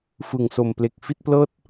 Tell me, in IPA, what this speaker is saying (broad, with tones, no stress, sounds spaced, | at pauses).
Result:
f ɯ˨˩ ŋ s o˨˩ m p l e˨˩ k̚ f i˥˩ t̚ p l ɤː˥˩ t̚